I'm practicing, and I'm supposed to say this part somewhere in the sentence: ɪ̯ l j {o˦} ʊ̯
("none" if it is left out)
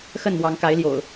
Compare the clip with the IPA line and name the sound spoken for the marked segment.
o̰˨˩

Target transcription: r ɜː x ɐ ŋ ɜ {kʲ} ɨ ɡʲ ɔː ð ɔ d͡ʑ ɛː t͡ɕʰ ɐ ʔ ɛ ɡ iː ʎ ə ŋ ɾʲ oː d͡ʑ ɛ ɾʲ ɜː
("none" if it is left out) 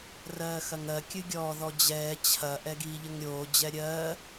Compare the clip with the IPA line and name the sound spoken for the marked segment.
kʲ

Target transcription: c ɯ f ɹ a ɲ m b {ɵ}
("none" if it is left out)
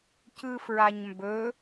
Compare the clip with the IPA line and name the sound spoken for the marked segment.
ɵ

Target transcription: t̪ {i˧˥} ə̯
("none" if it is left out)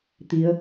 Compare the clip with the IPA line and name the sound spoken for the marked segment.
i˧˥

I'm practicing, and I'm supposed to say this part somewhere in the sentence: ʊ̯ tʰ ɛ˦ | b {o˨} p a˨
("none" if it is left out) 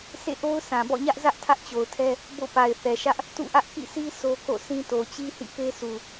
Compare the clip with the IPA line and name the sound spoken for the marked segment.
o̰˦˨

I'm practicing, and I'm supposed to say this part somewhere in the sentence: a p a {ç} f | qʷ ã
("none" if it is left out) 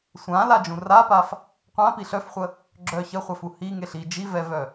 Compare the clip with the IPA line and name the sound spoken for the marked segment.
none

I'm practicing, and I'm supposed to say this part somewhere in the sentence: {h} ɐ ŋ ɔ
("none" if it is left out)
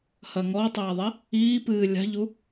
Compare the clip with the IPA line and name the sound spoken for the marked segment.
h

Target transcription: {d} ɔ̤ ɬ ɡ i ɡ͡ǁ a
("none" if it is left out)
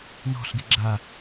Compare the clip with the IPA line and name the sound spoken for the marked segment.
n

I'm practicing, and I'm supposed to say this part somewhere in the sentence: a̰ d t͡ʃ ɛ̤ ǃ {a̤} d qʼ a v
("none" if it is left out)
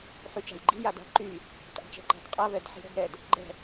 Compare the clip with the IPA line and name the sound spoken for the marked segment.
a̤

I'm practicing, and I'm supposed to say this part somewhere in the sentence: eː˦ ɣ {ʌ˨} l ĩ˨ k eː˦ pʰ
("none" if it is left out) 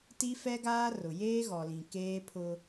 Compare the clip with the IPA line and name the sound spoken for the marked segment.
ɔ˨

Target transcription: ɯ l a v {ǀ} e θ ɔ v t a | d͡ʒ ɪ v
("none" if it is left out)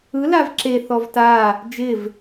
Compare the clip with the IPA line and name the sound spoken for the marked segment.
ǁ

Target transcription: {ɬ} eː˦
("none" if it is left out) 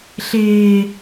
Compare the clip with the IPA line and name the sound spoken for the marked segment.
ɬ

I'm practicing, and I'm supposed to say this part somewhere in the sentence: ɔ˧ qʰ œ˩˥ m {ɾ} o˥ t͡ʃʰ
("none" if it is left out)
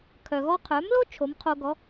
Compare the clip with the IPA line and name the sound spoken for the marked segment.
l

